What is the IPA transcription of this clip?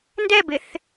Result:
n d ɛ b ɪ θ

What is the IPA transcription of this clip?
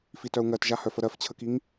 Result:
f i t œ u̯ ŋ ɜ t ʒ a h œ f ə ɾ ɜ f t͡ɕʰ ə k i ŋ

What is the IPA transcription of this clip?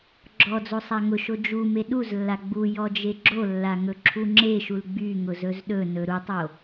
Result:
ɡ͡ǁ ɔ d͡z o sˤ a ŋ ʊ ʃ o d͡ʒ u m e ɗ u z lː a ɡ͡b u j ɔ d͡ʒ e ɡ͡ǁ o lː a ŋ ɵ ǁʰ u ŋ͡ǁ e ʃ u l ɡ͡b y ŋ ʊ z ɵ z ɗ ɵ n ɵ ɾ u tˤ o

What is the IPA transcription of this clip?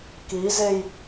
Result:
k i z e j

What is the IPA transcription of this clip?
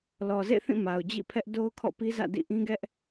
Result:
l ɔ˨ z ḛ˦˨ θ ĩ˦˨ m a˨ ʊ̯ d͡ʑ ḭ˦˨ pʰ ɛ˦ ʔ d o˦ ʊ̯ kʰ ɔ̰˦˨ p i˦ z ä̰˦˨ d ḭ˦˨ ʔ ĩ˦ ɡ ɛ˦ ʔ

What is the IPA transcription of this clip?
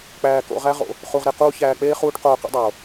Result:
k͡p æː˧ k o̰˧ ʁ æ˦ ʁ o̰˧ | χ u˧ ʁ ɾ e˧ q uː˦ ç æː˧ k͡p eː˦ χ uː˦ ʈ q oː˧ q ṵ˨˦ dˤ oː˨

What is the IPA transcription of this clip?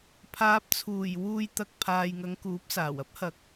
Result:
pʰ aː˨ p̚ t͡sʰ uː˨˩ j w uː˧ j t̪ ɐ˧ k̚ pʰ aː˨ j ŋ ɐ˨˧ ŋ k uː˨˥ p̚ s aː˨˩ w ɐ˥ p̚ h ɐ˨˥ k̚

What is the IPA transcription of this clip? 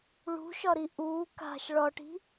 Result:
ɭ ṳ ʃ ɒ ɾ i ʔ u k a̤ ʃ ɭ ɒ ʈ i̤

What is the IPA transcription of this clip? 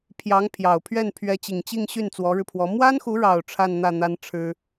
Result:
pʰ j ɑ˧˥ ŋ pʰ j ɑ˨˩ ʊ̯ pʰ ɥ ɛ˥˩ n pʰ ɥ ɛ˧˥ t͡ɕ i˨˩ ŋ t͡ɕ i˥˧ ŋ ɕ y˥˩ n t͡s w ɔ˧˥ ɻ ɻ̩˧ pʰ w ɔ˧˥ m w a˥ n x u˧˥ ɻ ɑ˨˩ ʊ̯ ʈ͡ʂʰ a˥˧ n n̪ ä˥˩ n̪ a˥ n ʈ͡ʂʰ ɻ̩˥

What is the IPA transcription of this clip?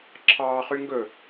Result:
ǁʰ ɑː χ y ŋ ɡ ɵ

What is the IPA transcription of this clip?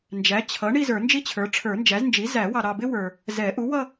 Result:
n d͡ʒ æ˩˥ t͡ɕʰ ʌ˩˥ ɳ i˥˧ z ə˞˨˩˦ n d͡ʒ i˥ t͡ɕʰ ə˞˩˥ ʈ͡ʂʰ ə˞˨˩˦ n d͡ʒ æ˩˥ z n d͡ʒ i˩˥ z æ˨˩˦ w ɑ˨ ɾ ɑ˨ b ɪ˥ w ə˞˨ | z ɛ˨˩˦ ʔ u˩˥ w ʌ˥˧

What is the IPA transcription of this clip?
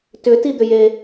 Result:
t ʏ t i d̪ ʏ j e

